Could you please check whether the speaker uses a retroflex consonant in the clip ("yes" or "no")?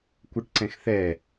yes